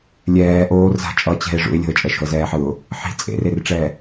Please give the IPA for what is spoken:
lʲ ɛː ʔ oː r z a̤ t͡ʃʼ ʌ t͡ɕ ɛ̤ ɪ̯ ʐ ṵ ɪ̯ lʲ o̤ ə̯ t͡ʃʼ ɛ ʃ o̤ ə̯ z ɛː ħ ɯ ʊ̯ | ħ i̤ t͡sʼ ḛ r e r ʈ͡ʂ ɛː

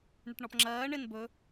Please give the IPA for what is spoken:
ɳ ɪ ʈ ɳ ɔ p ŋ͡ǁ ɜː ɳ ɪ n b ɵ

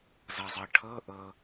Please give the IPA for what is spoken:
z ɤ zˤ ɤ ʈʰ ɤ ʔ ɤ

